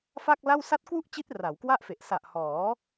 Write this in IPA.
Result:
f a˥˩ k̚ l a˥˩ w s a˦˥ t̚ k w u˥˩ ʔ t͡ɕ i˦˥ t̚ r a˩˦ w k w a˥˩ ʔ f e˨˩ ʔ s a˨˩ ʔ h ɔː˩˦

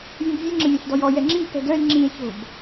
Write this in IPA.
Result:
vʲ ũ b vʲ e ŋ͡ǁ ə̃ vʲ õ ɬ d ɔ j ɔ j ɛ ŋ͡ǁ ĩ b p ɛ̤ d œ e̯ ŋ͡ǁ ĩ e̯ ç o̤ b

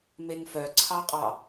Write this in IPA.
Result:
m e ŋ f œ ǀʰ ɑ qʼ ɑ

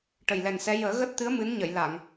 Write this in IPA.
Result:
ʈ ə˨˩ j l ɛ˨˩ n s ɛ˧˥ j əː˨˩˦ ɣ əː˦˥ t̚ t̪ ɨ˧˥ ə̯ m ɨ˧˥ n ɲ ə˨˩˨ j l a˨˩˨ ŋ

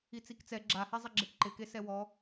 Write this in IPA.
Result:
i t͡s i k t͡s ɛ ɡ͡ǁ a h e zˤ ɪ ɡ͡ǁ e k ǃ ɪ k e s ɛ w ɔ

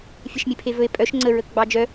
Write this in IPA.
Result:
fʲ e ʃ mʲ e pʰ e v ɵ e̯ pʼ œ ʃ ŋ͡ǀ ə ɹ ə k ɡ͡b ɑ d͡ʒ œ

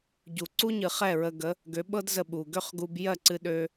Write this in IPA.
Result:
ɟ u˩ ǀ u˥ ɲ ɨ˩ χ ɛ˥˩ ɹ ə˧ ɡ ə˩˥ | ɡ ø˩˥ ɓ ɤ˥ d z ə˧ ɓ u˩ ɡ ø˥ χ ɡ u˧ b j ɜ˥˩ ǀ ɨ˧ ɗ ø˧

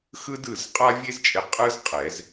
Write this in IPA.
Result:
x ɯ˥ d ɯ˩˧˩ z qʼ a˥ vʲ e˥ z t͡ʃʼ e˧ qʼ ɯ˥ z qʼ ɛ˨˩˦ z

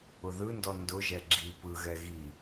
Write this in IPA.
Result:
ʊ ð ɯ n d ɔ n d ʊ ʒ ɛ ɡ͡ǁ i p ɯ ɣ ɛ ɣ i

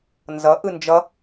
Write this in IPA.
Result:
n z ʌ ʔ ɯ n d͡ʒ ʌ

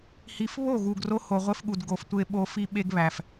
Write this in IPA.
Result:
h i˨˦ f β o˦˨ ɣ u˨ ɡ r o˦ h o˨ ʁʷ e˦ f ɠ u˨ d ɡ o˨ f tʷ e˦ ɓ o˦ f i˦ ɓ e˦ ɡ β æ˨ f

